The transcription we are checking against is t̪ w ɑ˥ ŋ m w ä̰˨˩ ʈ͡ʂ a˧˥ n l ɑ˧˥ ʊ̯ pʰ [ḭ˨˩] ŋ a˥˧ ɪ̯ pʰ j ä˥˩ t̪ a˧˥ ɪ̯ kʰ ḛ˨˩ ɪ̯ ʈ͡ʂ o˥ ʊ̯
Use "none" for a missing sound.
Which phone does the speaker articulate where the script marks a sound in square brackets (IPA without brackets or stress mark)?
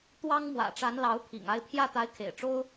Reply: ḭ˨˩